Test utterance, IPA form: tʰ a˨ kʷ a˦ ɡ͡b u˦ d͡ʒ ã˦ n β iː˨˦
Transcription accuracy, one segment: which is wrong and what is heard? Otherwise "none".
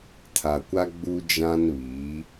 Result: none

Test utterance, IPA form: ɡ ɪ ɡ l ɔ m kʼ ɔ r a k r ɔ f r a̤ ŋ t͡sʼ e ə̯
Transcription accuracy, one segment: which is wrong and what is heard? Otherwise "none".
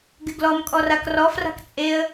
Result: ŋ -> k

